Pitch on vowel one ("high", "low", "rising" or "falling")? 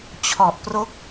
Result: low